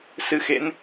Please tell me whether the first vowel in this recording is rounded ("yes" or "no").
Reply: no